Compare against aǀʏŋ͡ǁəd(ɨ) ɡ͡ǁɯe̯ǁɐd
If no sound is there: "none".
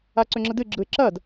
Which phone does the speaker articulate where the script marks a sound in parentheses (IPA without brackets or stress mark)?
ɨ